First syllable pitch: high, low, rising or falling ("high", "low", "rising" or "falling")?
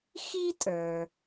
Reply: high